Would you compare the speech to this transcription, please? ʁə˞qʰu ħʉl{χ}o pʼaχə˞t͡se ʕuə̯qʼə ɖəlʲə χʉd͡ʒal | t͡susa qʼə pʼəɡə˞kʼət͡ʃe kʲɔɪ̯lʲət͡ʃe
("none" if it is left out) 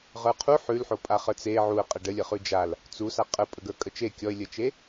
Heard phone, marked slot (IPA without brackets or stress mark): ħ